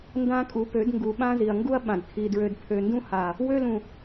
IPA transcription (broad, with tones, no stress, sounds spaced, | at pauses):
n d ã˦ kʼ u˨˦ p ø˨˦ d ŋ ɡ u˨ ɓ ã˦ z i˨ ɐ̯ ŋ ɡ u˦ ɐ̯ ɓ ã˨ d kʰ i˨ d ɹ ø˨ d pʰ ø˨ n d ũ˦ h a˨ | w ø˦ l ũ˨